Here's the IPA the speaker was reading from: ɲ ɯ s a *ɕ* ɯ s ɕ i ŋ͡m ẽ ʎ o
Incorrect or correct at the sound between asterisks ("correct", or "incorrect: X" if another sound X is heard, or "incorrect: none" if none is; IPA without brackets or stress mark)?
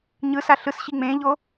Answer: incorrect: ɬ